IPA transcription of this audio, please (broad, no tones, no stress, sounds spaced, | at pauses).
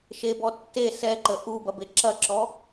ʃ e b ɔ tː e s ɛ ǃ ə ʔ u b ɐ b e ǁ ɐ ǁ ɔ